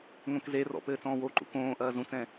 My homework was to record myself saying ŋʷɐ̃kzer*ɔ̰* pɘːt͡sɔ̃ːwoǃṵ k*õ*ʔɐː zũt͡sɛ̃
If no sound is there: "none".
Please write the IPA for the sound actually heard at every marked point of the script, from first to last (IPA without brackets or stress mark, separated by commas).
ɔ̰, õː